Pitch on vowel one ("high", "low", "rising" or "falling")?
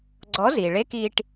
rising